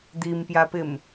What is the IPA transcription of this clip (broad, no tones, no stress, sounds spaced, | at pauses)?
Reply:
d̪ i m p j a p ɪ m